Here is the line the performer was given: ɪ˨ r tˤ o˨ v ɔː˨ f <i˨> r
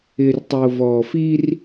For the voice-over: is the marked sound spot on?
no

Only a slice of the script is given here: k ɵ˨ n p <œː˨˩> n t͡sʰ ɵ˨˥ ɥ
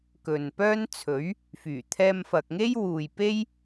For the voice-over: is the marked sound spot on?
no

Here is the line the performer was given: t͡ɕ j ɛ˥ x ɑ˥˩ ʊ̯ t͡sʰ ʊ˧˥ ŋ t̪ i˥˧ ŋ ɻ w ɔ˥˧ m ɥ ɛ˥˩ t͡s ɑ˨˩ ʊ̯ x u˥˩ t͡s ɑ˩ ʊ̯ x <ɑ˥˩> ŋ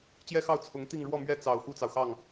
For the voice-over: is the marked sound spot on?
yes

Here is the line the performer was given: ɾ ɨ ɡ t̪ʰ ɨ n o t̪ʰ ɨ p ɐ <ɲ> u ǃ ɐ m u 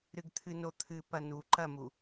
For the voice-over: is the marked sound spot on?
no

